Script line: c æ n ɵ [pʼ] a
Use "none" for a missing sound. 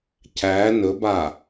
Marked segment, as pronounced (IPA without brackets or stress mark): b